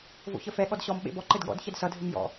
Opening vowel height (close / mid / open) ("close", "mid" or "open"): mid